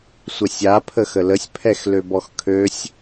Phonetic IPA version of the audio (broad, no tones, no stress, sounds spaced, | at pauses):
sʷ ə sʲ a pʰ ə x ə l ə sʲ pʰ ɛ x l ø b ɔ x kʰ ø sʲ